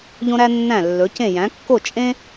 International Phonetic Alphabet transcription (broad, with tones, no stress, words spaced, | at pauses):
ʎõ˥ɾæ˥nːæ̃˥˩ lːɵ˩˥cẽ˥˩ jæ̃˩˥kːo˥˩ t͡ʃʼẽ˥